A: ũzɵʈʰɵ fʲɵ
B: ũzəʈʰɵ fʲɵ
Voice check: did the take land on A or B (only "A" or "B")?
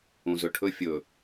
A